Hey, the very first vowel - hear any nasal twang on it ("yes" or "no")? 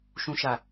yes